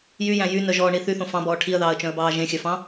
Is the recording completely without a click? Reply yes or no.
yes